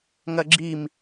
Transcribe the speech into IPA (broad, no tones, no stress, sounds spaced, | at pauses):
ŋ ɐ ɡ͡ǁ i m